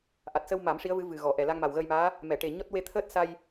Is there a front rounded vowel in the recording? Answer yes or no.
no